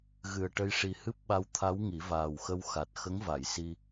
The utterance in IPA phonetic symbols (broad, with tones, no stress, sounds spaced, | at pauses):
ɣ ɨ˨˩ ə̯ ʈ ə˧ j ʂ i˨˩ h ɨ˦˥ p̚ ɓ a˧ w t̪ʰ a˧˥ w ŋ i˨˩˦ v aː˨˩ w x ə˧ w x a˨˩ t̚ x ə˧˥ ŋ v a˨˩˨ j s i˧